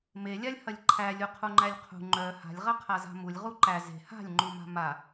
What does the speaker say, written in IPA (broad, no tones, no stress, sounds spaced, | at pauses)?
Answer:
m e lʲ a lʲ h ɐ lʲ ǃʰ æ lʲ u qʰ u ŋ͡ǃ æ lʲ qʰ ṳ ŋ͡ǃ œ h a̤ lʲ ʁ ɐ qʰ a z a̤ m u lʲ ʁ u ǃ æ z e̤ h a̤ lʲ ŋ͡ǃ u m a̤ m a